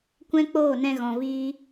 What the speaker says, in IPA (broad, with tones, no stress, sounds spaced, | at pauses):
kʷ ɛ̃˦ k͡p oː˦˨ n ɛ̃˧ ɣ ɔ̃˨ v iː˧